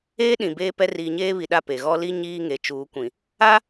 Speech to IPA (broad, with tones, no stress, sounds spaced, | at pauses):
eː˦ ɗ ĩ˨ b eː˦ p ɛ˦ r iː˨ ɲ eː˦ β i˨ ɗ a˦˨ p e˨ ɣ ɔ˦ l i˦ ɲ iː˦ ŋ e˨ t͡ʃ uː˨˦ kʷ ĩ˨ | a˦